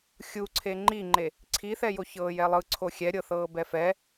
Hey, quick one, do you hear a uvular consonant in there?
no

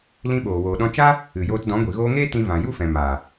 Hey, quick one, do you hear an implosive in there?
yes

